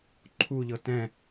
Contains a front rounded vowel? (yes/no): no